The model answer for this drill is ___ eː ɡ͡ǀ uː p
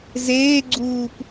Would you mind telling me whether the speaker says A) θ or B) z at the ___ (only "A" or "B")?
B